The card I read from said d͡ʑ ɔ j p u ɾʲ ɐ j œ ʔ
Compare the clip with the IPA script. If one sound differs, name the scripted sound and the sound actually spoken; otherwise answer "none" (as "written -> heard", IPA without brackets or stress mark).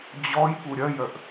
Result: none